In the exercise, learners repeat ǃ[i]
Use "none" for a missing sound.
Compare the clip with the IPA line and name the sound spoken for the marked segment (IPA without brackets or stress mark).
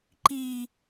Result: i